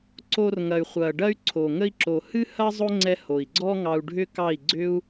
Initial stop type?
click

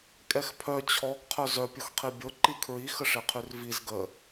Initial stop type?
ejective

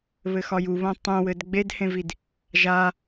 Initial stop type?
plain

